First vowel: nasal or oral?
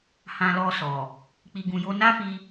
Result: nasal